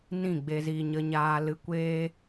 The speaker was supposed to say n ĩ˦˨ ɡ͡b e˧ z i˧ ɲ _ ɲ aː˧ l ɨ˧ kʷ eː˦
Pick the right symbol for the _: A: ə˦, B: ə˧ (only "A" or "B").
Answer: B